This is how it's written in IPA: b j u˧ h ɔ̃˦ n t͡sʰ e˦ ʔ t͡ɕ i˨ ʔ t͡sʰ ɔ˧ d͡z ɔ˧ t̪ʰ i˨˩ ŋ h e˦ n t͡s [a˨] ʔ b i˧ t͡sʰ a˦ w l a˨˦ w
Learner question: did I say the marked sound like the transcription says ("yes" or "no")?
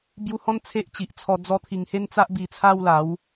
no